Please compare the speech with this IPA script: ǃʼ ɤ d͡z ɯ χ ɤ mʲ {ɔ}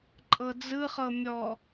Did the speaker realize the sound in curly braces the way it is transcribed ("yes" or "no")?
yes